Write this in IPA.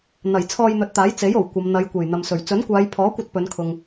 n̪ ɐ˨˩ j t͡sʰ ɔː˧ j n̪ ɵ˨˥ t̚ t̪ aː˨˥ j t͡s e˨˥ j o˨˩ w kʷ ɐ˨˧ m n̪ ɐ˨˧ j kʷ e˨˩ j n̪ ɐ˨ m s ɵ˨˩ ɥ t͡s ɵ˨˥ n kʷ aː˨˧ j pʰ ɔː˨˥ kʷ ɐ˧ t̚ p ɵ˨˧ n kʰ ʊ˨ ŋ

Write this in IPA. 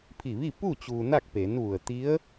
pʰ i˧˩ ʋ i˥˨ p uː˥˨ t͡ɕ uː˧ n a˥˨ k̚ p e˩˧ n ʋ u˩ ə̯ t̪ i˧˥ ə̯

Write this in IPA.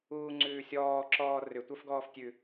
uː ŋ͡ǀ ʉː sʲ ɔː ǁ ɔː r ʏ tʷ ə˞ f ɡ ɔː f tʲ ʉ

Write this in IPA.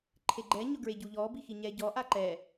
ǃʰ e ɡ͡ǃ ɛ ɲ ʊ ɡ ɹ e ɟ u ʎ ɔ b i x i ɲ ɛ ɟ ɔ ʔ a ǃ ɛ

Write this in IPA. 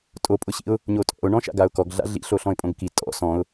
tʼ o pʼ ʊ ɕ ḭ ʊ̯ | ɲ o tʼ ɔ̰ ʊ̯ ɳ ɔ̃ ʃ a̰ ɡ a ʊ̯ k ɔ ɡ ɮ a̰ ɮ ḭ ɬ o ɬ ɔ̃ ɪ̯ pʼ õ ɡ k i tʼ ɔ̰ s ɔ̃ ʊ̯

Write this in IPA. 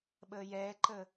ɓ əː j ɛː ǃ ə

